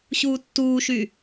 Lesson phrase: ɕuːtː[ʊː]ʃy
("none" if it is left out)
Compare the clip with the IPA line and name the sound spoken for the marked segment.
uː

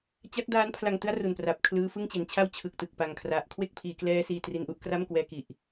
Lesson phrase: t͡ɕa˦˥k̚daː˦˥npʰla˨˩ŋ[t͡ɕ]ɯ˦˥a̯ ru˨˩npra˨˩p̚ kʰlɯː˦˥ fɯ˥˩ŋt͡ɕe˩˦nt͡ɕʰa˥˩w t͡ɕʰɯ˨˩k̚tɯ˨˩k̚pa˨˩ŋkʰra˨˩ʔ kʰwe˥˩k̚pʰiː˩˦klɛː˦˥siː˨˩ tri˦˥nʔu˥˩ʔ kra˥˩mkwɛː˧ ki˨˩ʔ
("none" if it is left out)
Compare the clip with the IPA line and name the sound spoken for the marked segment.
t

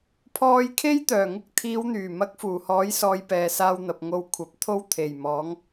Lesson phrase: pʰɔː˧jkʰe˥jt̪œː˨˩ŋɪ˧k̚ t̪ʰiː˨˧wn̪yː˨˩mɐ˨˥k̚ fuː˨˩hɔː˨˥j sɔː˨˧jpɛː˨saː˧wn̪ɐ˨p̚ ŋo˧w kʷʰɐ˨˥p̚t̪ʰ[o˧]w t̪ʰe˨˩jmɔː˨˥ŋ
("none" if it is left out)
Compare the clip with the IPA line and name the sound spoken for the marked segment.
o˥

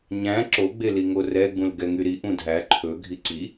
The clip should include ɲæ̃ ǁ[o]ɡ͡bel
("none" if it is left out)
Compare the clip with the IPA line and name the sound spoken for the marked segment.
o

